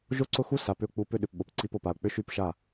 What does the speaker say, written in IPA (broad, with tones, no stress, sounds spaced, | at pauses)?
ʒ o˦ ǀ ʊ˦ x u˦ s a˨ p ʏ˧ ʊ̯ k͡p u˧ p ʏ˦ ɗ ʏ˨ p ɓ o˨ p ǀ i˧ p o˨ p a˨ ʊ̯ k͡p ʏ˦ ʃ y˦˨ p ʃ a˦˨